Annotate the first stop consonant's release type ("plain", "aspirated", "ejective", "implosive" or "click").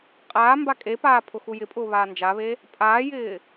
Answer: ejective